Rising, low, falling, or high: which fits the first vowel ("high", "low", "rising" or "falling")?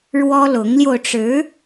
high